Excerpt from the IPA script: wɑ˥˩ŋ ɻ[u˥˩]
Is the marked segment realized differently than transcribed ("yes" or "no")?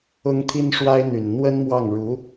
yes